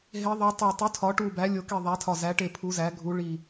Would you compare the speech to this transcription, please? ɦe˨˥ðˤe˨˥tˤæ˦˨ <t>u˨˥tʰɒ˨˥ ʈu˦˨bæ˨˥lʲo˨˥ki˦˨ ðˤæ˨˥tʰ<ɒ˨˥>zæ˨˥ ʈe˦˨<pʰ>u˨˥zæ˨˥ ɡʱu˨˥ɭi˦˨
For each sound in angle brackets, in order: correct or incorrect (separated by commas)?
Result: incorrect, incorrect, correct